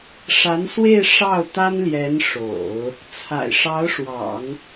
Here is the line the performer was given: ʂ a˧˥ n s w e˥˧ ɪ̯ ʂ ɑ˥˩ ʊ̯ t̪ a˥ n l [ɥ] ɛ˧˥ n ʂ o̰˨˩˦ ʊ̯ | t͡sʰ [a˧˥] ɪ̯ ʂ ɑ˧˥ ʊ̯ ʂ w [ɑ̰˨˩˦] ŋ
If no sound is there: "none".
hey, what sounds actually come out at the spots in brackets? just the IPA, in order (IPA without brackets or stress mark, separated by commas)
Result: j, a̰˨˩, ɑ̰˨˩˦